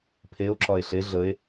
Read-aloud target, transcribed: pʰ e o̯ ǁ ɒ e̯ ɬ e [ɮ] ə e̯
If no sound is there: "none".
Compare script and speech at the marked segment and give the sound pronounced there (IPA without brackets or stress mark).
ɮ